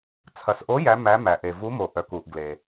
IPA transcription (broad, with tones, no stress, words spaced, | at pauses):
t͡sʰɐ˩sʔo˨˦ jæ˨˦ mæ˨˦mæ˩ʔe˩ vu˨˦mo˩ ʔœ˩ku˩ʔ ɡle˩